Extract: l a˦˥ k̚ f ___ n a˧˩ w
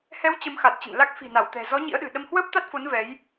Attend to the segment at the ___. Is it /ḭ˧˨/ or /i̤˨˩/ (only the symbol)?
i̤˨˩